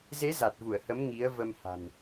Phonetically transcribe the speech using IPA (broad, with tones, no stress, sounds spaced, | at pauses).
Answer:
z e˨˦ z a˨˩ t̚ v u˧˩ ə̯ h ə˨˦ m ŋ i˨˦ ə̯ v ə˧ m h a̤˨˩ n